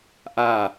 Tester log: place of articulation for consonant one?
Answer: glottal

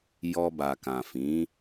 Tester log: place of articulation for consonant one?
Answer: palatal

